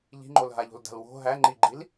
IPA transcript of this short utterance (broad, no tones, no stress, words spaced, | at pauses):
ʎi̤ŋ͡ǃolɦaʎo̤l da̤lwo̤ ɦæ ŋ͡ǃiɡ͡ǃil